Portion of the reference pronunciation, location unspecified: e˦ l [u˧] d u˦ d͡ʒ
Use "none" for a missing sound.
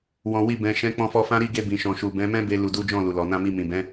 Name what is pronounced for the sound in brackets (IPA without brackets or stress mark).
u˧